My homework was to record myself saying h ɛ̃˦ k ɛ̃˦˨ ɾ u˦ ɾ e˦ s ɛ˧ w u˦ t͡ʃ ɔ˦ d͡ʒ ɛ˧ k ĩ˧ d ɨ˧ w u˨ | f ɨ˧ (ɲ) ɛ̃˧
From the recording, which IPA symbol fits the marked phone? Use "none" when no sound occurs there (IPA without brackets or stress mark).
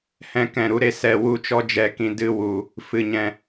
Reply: ɲ